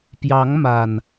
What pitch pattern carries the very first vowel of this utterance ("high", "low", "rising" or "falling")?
rising